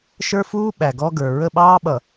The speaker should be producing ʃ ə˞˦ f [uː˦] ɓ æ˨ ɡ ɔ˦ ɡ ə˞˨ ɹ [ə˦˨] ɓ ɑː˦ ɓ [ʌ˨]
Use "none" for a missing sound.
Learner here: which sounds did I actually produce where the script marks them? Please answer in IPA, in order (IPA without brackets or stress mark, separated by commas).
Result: uː˦, ə˦˨, ʌ˨